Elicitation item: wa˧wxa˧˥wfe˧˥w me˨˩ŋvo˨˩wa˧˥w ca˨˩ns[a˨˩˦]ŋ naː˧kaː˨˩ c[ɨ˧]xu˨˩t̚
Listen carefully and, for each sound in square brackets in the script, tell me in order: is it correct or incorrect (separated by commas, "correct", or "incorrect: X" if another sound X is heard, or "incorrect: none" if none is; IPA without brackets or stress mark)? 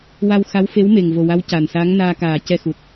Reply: incorrect: a˧˥, incorrect: ɛ˧